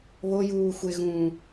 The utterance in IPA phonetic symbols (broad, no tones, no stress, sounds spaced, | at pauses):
β o j uː xʷ e ɣ ũː